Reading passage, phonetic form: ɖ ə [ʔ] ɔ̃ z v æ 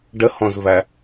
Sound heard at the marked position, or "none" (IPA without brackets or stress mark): h